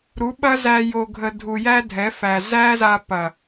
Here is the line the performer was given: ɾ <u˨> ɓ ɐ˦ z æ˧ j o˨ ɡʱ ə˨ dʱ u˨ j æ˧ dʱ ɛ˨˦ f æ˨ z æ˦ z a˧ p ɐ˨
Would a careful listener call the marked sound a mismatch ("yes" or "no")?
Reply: yes